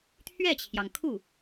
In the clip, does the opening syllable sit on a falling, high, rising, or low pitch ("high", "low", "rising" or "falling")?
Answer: falling